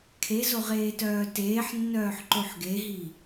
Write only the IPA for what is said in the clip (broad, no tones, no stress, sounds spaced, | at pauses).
kʰ e z o ʁ eː t œː t eː ħ nː œː ħ ǃ o ħ ɡ e ɦ i